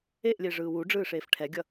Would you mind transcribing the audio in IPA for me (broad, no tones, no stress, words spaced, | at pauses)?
eʔlʲe ʐɯːwuɖ͡ʐɯːʂeːf ʈʰɛɡʲʌ